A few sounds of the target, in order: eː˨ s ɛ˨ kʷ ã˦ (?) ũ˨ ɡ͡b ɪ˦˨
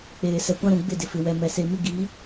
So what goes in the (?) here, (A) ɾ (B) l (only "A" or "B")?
A